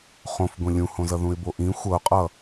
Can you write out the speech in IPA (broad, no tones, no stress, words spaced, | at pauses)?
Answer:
χõfɡʷĩ lʲũhõzʌ ðũɪ̯boʔĩ xʷʌʊ̯qʼʌ